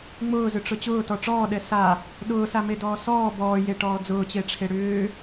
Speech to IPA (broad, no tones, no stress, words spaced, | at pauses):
ŋ͡mʊːzʏʈ͡ʂʊ t͡ɕʊːtɔ ʈ͡ʂɔːɗɛ sa | ɗʊːsamedɔː sɔː bɔːjeʈɔː d͡zʊːt͡ɕeʈ͡ʂʰe ɽʏː